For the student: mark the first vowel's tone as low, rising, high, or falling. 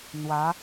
rising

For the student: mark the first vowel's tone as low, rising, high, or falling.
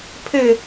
falling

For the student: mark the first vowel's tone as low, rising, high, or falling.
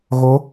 rising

